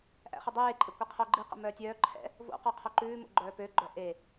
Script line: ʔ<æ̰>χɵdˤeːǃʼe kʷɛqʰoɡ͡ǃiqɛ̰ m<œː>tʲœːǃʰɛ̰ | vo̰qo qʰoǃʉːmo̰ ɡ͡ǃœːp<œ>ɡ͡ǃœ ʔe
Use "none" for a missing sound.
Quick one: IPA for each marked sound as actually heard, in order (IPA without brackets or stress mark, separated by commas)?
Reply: æ̰, œː, ø